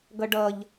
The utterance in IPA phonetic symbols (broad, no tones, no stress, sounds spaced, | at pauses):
ɡ ʌ ɖ ʌ ʎ